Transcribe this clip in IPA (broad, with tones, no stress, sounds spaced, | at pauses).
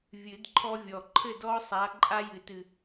vʲ ɨ˨˩˦ d ǃʰ ɔ˦ vʲ ɔ˨˩ ǃʰ ɘ˥˨ d ɔ˦ sˤ a˨˦ ǃʼ a˦ j ɨ˨˩˦ t ɨ˨˩